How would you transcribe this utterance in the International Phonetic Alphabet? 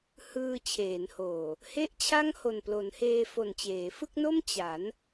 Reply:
h ɯː˧ t͡ɕʰ eː˩˦ n h oː˨˩ | h e˥˩ ʔ t͡ɕʰ a˥˩ ŋ h o˨˩ n p l o˩˦ n h eː˧ f o˨˩ n t͡ɕ eː˩˦ f ɯ˥˩ k̚ n o˥˩ m t͡ɕ a˩˦ n

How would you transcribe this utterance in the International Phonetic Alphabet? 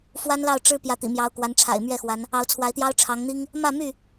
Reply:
f w a˦ n l ɑ˥˨ ʊ̯ ʈ͡ʂ ɻ̩˦ p j ä˨˦ t̪ ḭ˨˩ m j ɑ˨˦ ʊ̯ k w a˨˦ n ʈ͡ʂʰ a̰˨˩ ɪ̯ m ɥ ɛ˥˨ x w a˨˦ n | ɑ˨˦ ʊ̯ t͡sʰ w a˨˦ ɪ̯ t̪ j ɑ˦ ʊ̯ ʈ͡ʂʰ ɑ˨˦ ŋ n̪ i˦ ŋ | m ä˥˨ m y˥˨

